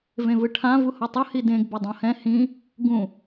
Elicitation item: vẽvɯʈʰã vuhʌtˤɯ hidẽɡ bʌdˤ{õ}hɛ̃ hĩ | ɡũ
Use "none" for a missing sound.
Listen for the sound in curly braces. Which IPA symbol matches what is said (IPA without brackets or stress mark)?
õ